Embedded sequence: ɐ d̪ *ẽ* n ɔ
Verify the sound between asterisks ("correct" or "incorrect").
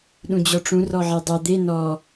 incorrect